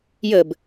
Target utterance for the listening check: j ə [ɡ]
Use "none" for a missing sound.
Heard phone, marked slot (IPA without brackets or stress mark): b